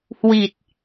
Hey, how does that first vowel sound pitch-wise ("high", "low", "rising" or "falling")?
low